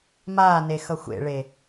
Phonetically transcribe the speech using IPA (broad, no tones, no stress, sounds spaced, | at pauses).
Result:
m aː n e x ʌ xʷ ḛ ɭ e